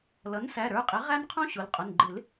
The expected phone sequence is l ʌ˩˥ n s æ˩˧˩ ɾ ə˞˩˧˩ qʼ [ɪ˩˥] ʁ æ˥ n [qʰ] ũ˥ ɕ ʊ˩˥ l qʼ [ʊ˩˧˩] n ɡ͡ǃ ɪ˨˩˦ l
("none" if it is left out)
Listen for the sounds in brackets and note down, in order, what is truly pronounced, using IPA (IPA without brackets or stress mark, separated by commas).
ɪ˩˥, qʰ, ʊ˩˧˩